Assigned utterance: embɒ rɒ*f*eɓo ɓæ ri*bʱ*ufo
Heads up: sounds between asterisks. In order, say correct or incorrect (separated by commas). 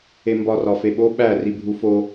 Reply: correct, correct